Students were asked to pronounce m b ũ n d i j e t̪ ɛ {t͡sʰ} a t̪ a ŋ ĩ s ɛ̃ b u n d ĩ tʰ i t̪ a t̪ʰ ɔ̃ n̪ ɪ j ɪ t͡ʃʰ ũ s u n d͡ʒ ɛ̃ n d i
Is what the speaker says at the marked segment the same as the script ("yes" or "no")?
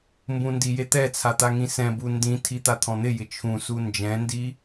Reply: yes